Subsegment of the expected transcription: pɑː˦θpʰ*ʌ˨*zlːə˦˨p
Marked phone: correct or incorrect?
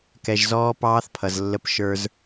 correct